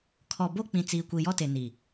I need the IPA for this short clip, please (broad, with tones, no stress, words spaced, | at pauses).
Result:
kʰɔ˨bo˦ k͡pĩ˨t͡siː˨kʷi˨ jɔ˦te˨ ni˨